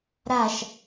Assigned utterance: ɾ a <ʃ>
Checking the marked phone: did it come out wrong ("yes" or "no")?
no